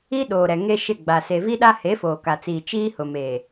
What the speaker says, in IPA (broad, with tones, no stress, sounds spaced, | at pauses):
i˦ ɗ oː˨ ɾ ɛ˨ ŋ e˦ ʃ ɪ˦˨ ɡ͡b a˨ s e˨ v i˦ ɗ a˦ h e˨˦ f oː˨ k a˨ t͡s iː˨ t͡ʃ iː˦ h ʊ˨ m eː˨